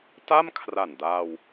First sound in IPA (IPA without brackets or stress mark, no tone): t